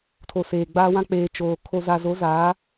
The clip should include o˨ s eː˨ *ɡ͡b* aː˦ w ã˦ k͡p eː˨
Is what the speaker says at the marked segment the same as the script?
yes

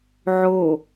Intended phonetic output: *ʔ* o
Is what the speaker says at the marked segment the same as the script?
no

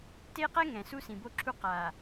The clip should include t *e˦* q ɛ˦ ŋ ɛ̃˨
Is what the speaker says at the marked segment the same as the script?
yes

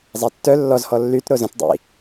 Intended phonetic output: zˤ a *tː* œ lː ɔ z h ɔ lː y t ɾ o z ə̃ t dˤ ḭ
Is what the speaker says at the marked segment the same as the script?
yes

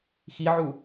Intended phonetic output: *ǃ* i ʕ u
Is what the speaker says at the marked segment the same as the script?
no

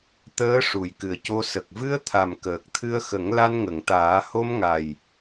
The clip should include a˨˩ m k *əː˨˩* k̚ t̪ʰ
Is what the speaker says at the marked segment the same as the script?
yes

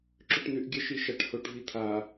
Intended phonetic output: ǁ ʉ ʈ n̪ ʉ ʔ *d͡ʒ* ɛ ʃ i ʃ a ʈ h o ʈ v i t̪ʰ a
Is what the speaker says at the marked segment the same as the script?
no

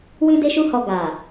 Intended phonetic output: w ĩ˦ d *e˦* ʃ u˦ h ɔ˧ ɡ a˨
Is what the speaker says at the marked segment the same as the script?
yes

